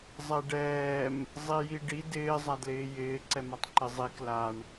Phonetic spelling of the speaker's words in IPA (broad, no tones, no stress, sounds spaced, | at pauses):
zˤ ɛ ɖ ɛː m | zˤ i j i ɖ i d ɪː zˤ a d l ɪː j ɪː ǀ ɛ m a tˤ ǃ ɪ zˤ i k l a ɳ